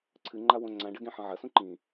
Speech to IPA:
ǀʰ ɨ ŋ͡ǃ a w õ ŋ͡ǀ ã ɖ ɐ ɡ ẽ ħ ɐ̃ ʕ ɐ s ũ ǃ ĩ

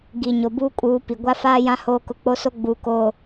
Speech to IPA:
ɡ i˨ ɲ o˨ b uː˦ kʼ uː˨˦ p i˨ ɡʷ a˦ f aː˦ j ã˦ h oː˦ k ʊ˦ k͡p o˦ s o˦ ɡ͡b uː˨ k oː˨

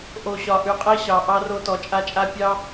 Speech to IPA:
ʔ o˨ ɕ ɒ˨ ʔ ʉ˨ qʼ e˦ ɕ ɑ˨ ʔ ɑ˦ r o˦ t ɔ˨ t͡ʃʼ a˦ t͡ʃʼ a˦ pʲ ɑ˦

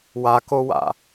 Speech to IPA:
w a k o w a̰

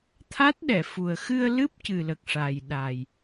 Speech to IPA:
t̪ʰ a˦˥ t̚ ɗ ɛ˨˩˨ f u˨˩ ə̯ x ɨ˧ ə̯ l ɨ˦˥ p̚ c ɨ˨˩ l ə˨˩ k̚ ʂ a˨˩ j ɗ a˨˩ j

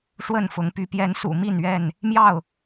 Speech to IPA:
ʂ w ə˥˨ n f ʊ˨˦ ŋ p y˨˦ p j ɛ˨˦ n s ṵ˨˩ m i˥˨ n ɥ ɛ˥˨ n | m j ɑ˥˨ ʊ̯

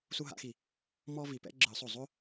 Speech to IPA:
s u˦ ɦ a̰˨˥ x i˧˩ | m ɔ˦ v i˧˩ p ɛ̰˦ ɡ͡ǁ ɯ˨˩˦ sˤ o˧˩ zˤ o˦

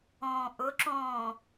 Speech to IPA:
õː ʔ ʊ ǁ õː

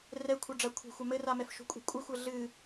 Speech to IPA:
r ɛ kʷʰ a ɖ͡ʐ a kʷʰ ɛ̤ xʷ a m ɘ r a m ɛ f ʃ o̤ kʷʼ ɛ̤ kʷʼ ɨ xʷ ɘ ɮ ɨ

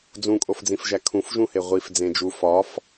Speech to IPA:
d͡z ũ kʼ o f d͡z ĩ f ʒ æ kʰ ũ f ʒ ũ h e ʁʷ i f d͡z ẽ d͡ʒ u f ɒ f

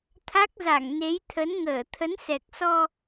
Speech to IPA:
t̪ʰ a˦˥ k̚ z a˧˩ ŋ n e˨˦ j t̪ʰ ə˨˦ n ŋ əː˧˩ t̪ʰ ə˨˦ n s ɛ˨˩ k̚ s ɔ˧

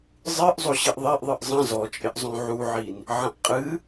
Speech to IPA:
zˤ ɨ ʔ zˤ o ɕ i ʔ ðˤ i ʔ ðˤ ɨ ʔ zˤ ɐ̃ z ɔ t͡ʃʼ ɪ ʔ zˤ õ ʕ u ʕ i n | ʕ ɐ̃ ʔ qʼ ɨ

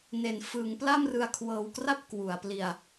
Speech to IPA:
n e˩˦ n f ɯː˩˦ ŋ p l a˥˩ m r ɯ˧ a̯ kʰ w ɤː˧ w k r a˥˩ p̚ k w u˩˦ a̯ p l i˧ a̯

